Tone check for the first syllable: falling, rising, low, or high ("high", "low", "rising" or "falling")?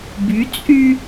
rising